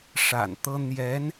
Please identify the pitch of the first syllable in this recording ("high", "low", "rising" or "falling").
low